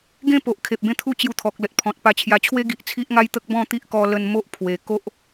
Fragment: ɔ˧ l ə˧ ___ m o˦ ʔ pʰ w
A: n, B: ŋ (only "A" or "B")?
A